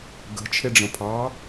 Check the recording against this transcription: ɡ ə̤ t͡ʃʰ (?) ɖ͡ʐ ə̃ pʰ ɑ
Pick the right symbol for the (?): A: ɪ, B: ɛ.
A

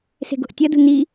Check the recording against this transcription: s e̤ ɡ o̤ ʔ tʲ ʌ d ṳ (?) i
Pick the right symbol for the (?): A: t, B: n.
B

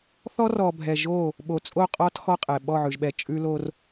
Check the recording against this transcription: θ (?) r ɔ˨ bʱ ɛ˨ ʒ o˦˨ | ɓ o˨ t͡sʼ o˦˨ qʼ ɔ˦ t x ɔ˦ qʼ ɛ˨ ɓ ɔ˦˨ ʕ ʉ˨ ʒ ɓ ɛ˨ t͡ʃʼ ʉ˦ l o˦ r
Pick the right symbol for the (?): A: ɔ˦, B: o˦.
A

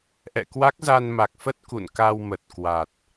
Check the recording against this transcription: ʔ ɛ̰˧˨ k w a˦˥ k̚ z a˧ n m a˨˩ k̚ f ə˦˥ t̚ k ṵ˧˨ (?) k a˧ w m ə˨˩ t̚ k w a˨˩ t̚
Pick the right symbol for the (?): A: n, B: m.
A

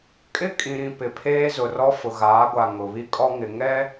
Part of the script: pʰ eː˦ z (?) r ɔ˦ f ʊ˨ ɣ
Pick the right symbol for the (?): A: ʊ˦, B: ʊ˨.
B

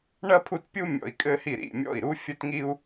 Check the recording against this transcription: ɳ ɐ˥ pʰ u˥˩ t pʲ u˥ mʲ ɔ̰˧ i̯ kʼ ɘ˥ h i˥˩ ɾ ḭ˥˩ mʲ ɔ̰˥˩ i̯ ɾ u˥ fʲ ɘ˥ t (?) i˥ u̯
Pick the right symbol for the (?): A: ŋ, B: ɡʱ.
A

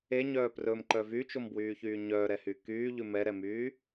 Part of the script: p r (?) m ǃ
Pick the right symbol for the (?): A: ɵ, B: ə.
A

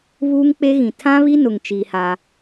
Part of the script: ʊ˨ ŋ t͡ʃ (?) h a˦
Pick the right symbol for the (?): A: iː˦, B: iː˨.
A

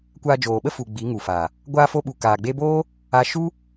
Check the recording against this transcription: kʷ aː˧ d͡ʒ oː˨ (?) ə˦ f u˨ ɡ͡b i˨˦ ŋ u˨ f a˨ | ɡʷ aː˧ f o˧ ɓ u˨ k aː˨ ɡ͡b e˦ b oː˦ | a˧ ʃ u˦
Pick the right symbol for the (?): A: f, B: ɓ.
B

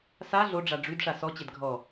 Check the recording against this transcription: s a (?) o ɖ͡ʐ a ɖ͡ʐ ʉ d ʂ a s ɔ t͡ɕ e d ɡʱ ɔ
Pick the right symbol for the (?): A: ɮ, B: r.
A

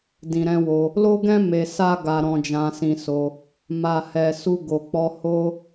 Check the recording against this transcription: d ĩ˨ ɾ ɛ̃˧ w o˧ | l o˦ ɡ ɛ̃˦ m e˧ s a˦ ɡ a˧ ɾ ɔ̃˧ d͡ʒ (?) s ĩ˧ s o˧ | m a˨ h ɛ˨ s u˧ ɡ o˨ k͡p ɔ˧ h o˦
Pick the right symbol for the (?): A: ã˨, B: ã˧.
B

